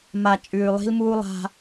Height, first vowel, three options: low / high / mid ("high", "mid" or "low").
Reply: low